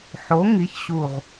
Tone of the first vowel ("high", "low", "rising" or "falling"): rising